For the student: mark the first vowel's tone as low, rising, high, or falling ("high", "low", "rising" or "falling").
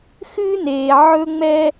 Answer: high